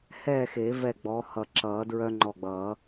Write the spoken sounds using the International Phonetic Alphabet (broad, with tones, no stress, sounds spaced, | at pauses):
h ɛː˥˨ x e˨˩˦ v ɛ˧˩ ɡ͡b ɔ˨˦ h ʌ˧˩ ǁ ʌː˨˩˦ d ɹ œ˦ ŋ͡ǃ ɔ˧˩ ɡ͡b ʌː˨˩˦